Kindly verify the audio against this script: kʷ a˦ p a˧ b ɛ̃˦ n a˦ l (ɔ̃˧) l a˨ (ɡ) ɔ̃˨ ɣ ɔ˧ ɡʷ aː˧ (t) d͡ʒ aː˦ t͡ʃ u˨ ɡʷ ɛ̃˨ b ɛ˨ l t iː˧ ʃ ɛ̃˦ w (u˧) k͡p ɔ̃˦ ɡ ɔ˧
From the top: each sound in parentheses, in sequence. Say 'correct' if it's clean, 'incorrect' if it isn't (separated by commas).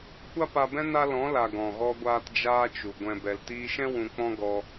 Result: incorrect, correct, correct, incorrect